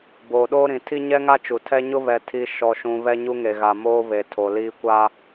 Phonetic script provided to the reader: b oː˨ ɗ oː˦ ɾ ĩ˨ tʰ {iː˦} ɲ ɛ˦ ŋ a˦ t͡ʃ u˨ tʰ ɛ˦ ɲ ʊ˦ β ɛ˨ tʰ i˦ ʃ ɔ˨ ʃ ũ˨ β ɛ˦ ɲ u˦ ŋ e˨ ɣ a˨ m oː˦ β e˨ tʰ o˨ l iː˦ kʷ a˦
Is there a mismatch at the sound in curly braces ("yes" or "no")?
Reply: yes